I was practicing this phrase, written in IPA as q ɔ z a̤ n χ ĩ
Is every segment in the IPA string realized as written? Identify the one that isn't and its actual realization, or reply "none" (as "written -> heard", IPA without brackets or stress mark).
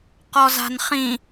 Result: none